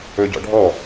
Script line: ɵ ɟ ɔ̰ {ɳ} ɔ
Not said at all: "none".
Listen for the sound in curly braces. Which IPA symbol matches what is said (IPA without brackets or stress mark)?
ɖʱ